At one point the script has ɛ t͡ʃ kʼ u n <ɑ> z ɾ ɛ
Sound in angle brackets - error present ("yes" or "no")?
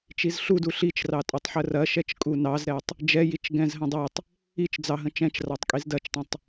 no